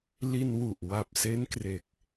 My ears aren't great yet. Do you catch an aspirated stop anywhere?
no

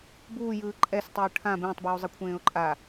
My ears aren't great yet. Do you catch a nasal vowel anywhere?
yes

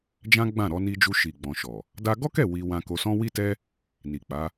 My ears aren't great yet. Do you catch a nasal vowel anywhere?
yes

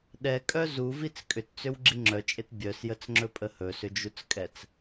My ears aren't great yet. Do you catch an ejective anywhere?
yes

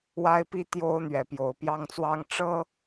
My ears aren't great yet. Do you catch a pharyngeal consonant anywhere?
no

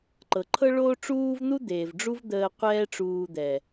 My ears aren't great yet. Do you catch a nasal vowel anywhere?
no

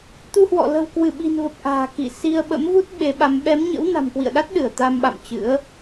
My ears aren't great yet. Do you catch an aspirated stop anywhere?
no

